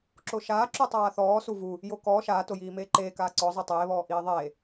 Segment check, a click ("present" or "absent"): present